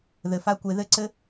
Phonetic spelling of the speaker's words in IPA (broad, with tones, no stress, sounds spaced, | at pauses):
ð ɘ˨ f a˦ kʷ e˧ ð ɘ˦ ǀ ɘ˦